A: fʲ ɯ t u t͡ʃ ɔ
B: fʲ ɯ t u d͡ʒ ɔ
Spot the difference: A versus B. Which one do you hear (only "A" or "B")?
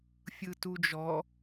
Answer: B